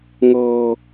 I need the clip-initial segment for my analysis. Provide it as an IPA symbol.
ŋ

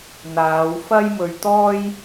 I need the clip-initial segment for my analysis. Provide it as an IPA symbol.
n̪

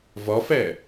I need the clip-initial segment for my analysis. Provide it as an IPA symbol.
v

